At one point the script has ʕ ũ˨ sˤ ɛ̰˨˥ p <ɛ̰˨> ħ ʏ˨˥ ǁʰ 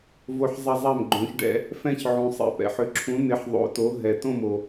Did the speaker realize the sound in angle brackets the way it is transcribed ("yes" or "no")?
yes